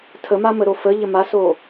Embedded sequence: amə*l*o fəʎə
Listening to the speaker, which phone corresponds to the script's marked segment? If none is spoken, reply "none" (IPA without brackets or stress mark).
ɾ